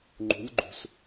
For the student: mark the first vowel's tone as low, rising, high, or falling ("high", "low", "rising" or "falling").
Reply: rising